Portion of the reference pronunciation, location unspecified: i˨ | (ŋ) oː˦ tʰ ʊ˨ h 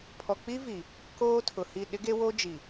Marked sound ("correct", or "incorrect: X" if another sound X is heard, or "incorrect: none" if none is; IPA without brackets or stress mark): incorrect: k